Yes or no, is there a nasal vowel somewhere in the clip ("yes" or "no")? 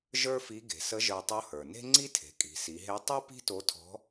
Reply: no